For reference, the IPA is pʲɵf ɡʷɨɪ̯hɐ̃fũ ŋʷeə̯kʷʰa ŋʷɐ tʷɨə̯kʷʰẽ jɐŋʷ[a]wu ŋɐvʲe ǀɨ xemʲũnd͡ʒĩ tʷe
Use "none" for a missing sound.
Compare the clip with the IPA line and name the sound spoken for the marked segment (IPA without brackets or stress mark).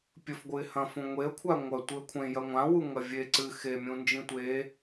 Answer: ã